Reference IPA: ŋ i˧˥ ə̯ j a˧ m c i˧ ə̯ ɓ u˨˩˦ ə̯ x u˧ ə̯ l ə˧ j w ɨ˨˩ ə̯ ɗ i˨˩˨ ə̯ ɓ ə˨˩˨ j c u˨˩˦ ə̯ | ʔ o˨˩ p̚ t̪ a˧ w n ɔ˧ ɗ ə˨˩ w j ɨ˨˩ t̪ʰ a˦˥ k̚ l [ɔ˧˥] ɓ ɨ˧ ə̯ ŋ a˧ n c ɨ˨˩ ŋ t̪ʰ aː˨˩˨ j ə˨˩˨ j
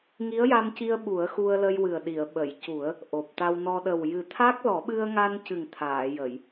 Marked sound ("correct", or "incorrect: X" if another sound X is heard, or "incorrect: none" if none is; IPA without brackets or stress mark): incorrect: ɔ˨˩˦